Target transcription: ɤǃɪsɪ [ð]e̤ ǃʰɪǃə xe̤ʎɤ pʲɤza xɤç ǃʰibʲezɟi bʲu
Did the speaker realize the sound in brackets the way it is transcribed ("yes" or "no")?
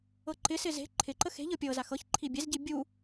no